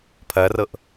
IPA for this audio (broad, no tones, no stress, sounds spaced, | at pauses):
pʰ ɐ r ɤ ʔ